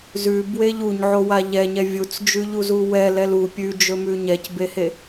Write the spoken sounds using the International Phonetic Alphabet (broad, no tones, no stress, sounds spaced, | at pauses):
z ʉ b w e ʎ u ɲ ʕ o w a ʎ ɛ ɲ ɛ vʲ u t͡s d͡ʒ ʉ ʎ u z u w ɛ l ɛ l u pʲ ʉ d͡ʒ ɵ m ʉ ɲ ɛ c b e h e